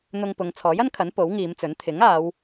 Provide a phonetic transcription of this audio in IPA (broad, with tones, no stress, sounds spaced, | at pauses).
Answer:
n̪ ʊ˧ ŋ p ʊ˨˧ ŋ t͡sʰ ɔː˨˥ j ɐ˥ n kʰ ɐ˨˥ n p o˨˥ w ŋ iː˨˧ m t͡s ɵ˨˥ n t̪ʰ ɪ˨˥ ŋ aː˨˧ w